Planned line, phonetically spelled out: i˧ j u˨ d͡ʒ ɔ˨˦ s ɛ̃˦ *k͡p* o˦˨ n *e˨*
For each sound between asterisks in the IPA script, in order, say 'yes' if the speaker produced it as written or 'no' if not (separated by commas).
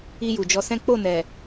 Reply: yes, no